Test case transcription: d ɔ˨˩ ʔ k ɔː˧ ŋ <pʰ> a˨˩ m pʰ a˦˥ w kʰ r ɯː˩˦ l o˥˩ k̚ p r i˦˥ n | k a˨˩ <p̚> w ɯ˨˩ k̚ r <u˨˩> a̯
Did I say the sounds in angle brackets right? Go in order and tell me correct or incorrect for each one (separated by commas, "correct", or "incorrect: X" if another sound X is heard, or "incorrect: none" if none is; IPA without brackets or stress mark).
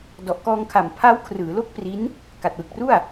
incorrect: kʰ, incorrect: t̚, incorrect: u˥˩